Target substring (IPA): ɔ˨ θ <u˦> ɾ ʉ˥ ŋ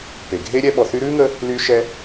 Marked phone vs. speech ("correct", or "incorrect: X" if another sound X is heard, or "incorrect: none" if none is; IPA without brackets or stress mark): incorrect: y˦